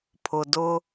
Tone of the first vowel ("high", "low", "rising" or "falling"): low